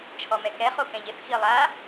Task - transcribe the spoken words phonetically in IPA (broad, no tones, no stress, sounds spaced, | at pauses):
t͡ʃʰ ɔ m ɛ k ɛ χ o k ɛ̃ ʎ ɪ θ x i lˠ a